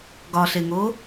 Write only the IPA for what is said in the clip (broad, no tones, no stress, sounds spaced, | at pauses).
ɡ ɒ ɬ e ŋ o